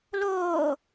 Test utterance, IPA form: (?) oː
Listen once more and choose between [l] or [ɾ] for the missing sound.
l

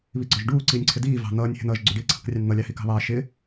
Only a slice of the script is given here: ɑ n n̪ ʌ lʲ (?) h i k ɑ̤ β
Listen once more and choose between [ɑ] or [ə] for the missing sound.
ɑ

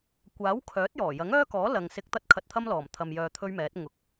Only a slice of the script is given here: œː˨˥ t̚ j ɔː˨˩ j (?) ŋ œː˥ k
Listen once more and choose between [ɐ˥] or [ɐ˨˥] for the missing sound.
ɐ˨˥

